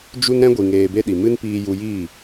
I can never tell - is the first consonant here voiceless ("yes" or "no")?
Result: no